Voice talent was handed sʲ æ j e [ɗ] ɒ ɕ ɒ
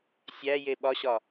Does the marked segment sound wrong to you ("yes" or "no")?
yes